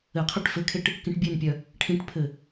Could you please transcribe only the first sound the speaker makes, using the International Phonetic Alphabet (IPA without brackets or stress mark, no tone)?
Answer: ɘ